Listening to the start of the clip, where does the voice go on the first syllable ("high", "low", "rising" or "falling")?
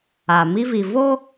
low